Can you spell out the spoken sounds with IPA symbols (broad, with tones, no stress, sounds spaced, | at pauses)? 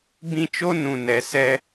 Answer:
b ĩ˦ t͡ʃ o˦ n ũ˨ n ɛ˨ s ɛ˦